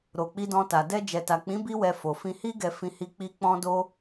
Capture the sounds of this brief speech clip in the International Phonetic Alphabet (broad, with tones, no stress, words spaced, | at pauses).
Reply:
ɾo˧k͡pi˦dɔ̃˦ta˧ dɛ˧ d͡ʒɛ˨ta˨k͡pĩ˨˦ bi˦wɛ˧ fo˨fĩ˧hi˦ ɡɛ˧fĩ˧ hi˧k͡pi˧ k͡pɔ̃˦do˦